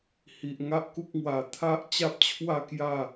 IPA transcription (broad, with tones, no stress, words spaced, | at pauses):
hi˨ʔ ŋa˦ʔku˦k̚ŋwa˧ t̪ʰa˦ʔt͡ɕa˦p̚t͡ɕʰwa˥˧kja˥˧